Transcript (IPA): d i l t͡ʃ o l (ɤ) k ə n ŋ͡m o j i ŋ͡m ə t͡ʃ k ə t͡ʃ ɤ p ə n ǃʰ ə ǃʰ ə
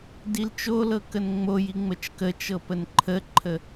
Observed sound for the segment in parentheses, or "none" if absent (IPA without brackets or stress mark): ɤ